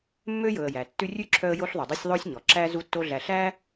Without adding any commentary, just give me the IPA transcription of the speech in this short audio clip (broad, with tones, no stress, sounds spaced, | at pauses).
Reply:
mː ø˥ j ɵ˨ ə̯ j æ˩ tː ʉ˦ rʲ ʉ˥ ǁʰ œ˦ ə̯ j o˦ ɬ ðˤ ʉ˩ dˤ i˦ sʲ ðˤ oː˥ sʲ ɲ ɔ˩ ǁ æː˦ z u˦ tː o˦ ɮ æ˨ ɬ æː˥